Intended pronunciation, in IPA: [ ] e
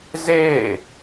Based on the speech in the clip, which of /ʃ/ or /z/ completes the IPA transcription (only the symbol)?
z